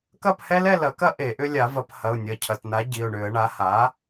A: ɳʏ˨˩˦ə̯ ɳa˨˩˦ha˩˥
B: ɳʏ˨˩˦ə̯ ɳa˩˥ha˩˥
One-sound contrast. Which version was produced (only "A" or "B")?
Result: B